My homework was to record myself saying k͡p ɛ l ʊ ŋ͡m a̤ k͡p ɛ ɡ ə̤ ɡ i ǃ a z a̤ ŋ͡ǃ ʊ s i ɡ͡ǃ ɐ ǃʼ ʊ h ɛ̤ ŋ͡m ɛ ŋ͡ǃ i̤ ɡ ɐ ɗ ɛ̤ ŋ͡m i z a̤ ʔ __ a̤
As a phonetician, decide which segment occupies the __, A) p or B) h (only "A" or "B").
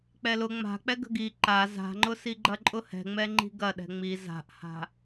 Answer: B